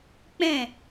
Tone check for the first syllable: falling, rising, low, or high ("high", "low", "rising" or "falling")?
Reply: falling